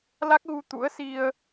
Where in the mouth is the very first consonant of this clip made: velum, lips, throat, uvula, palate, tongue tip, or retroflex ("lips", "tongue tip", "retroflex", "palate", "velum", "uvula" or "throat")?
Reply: tongue tip